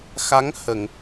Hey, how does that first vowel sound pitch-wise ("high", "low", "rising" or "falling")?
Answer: rising